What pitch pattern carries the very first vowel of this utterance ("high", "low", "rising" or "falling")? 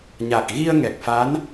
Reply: low